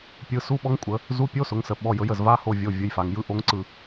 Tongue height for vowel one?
high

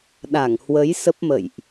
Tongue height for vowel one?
low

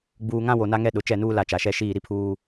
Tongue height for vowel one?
high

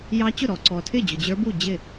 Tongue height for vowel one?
low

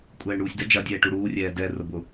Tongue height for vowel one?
mid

